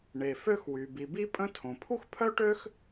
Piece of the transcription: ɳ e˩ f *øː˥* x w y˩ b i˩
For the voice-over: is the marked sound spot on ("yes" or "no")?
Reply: no